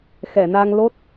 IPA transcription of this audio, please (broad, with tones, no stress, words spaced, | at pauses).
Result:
xɛ˨˩˨ na˧ŋ lo˦˥t̚